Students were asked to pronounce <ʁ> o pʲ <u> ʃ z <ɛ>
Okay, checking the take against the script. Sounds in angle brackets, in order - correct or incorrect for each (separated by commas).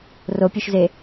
incorrect, correct, incorrect